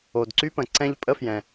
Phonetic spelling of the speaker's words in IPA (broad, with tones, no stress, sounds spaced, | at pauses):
o˩ d ǀ y˥ p ə̃˩ ǀ ɛ̃˥ ʎ pʼ ə˥ f j ɛ̃˩